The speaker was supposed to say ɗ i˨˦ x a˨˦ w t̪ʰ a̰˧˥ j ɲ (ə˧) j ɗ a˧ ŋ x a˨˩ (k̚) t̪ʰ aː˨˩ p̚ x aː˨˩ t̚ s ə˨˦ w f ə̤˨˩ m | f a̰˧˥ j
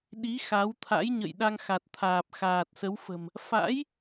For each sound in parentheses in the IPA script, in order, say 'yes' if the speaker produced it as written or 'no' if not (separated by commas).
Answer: no, no